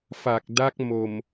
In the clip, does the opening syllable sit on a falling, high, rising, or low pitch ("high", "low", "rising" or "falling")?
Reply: low